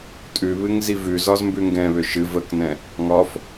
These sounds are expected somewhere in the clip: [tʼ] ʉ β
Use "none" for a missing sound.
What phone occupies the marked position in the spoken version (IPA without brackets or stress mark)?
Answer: tʼ